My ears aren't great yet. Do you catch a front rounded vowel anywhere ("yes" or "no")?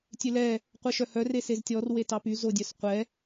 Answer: yes